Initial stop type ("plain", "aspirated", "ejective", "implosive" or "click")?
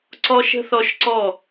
click